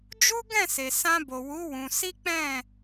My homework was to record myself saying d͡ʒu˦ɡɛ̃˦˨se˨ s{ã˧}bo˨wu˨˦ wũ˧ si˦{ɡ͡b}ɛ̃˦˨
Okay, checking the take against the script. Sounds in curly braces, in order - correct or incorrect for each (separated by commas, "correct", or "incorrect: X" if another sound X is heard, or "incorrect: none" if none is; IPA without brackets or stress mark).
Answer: correct, incorrect: k͡p